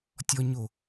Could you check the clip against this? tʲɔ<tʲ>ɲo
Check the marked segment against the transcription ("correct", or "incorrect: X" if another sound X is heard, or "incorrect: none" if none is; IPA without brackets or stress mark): incorrect: none